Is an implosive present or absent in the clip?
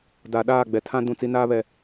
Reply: present